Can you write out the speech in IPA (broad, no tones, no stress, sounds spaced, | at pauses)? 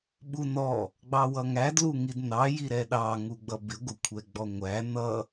ɓ u n ɔ | ɡ͡b ɑ w ʌ ŋ æ d l u ŋ i d n ɑ j i ɾ ɛ ɗ ɑ ŋ u ɡ͡b ʌ b ɪ ɡʷ ɪ kʷʰ ɛ ɡ͡b ɔ ŋʷ æ n ʌ